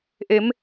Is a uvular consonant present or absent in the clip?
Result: absent